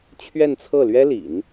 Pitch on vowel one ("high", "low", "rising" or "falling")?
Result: falling